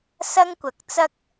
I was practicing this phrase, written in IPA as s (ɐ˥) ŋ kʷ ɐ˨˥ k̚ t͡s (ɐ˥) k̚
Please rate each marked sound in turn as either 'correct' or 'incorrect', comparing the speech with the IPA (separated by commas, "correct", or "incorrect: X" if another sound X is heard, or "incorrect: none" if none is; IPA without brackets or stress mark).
correct, correct